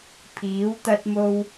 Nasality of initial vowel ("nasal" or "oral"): oral